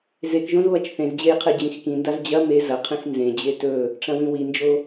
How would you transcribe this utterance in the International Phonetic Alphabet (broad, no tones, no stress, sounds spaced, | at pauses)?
z e k ʒ õ z β ɐ t͡ʃ θ ẽ z d͡ʑ e j qʰ ɨ d͡ʑ ĩ x k ĩ n d a z d͡ʑ ɐ m e z ɐ qʰ ĩ x n z ẽ d͡ʑ e t ɵ | ʈ͡ʂ ɐ̃ w ĩ w i n d͡ʒ o